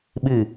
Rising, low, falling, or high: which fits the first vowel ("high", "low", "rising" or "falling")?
falling